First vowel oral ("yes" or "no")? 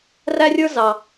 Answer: yes